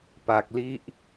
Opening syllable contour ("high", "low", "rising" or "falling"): low